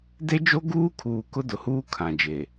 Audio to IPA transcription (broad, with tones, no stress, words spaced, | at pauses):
de˦d͡ʒo˦ ɡuː˦kʰuː˨ kʊ˦dʊ˨huː˦ kʰã˨d͡ʒe˨